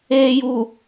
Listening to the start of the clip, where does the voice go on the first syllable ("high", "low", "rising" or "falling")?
low